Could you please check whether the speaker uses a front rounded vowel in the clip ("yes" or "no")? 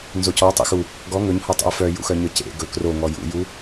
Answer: yes